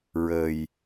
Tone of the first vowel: low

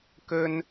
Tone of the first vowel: high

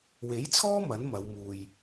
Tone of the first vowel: rising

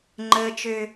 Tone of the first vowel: high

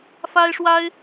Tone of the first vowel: high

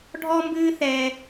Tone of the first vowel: high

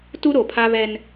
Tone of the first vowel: high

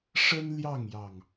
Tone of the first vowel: high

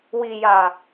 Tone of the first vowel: low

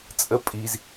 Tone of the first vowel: rising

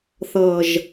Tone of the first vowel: low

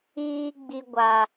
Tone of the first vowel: high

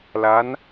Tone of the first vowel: rising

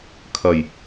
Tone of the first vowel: low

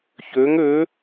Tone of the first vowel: rising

